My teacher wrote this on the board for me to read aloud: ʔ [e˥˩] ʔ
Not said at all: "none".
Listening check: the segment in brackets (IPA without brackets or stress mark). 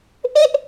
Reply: e˥˩